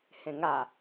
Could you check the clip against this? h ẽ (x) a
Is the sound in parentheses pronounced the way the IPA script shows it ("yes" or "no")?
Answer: no